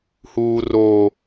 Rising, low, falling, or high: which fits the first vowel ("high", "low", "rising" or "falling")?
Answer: high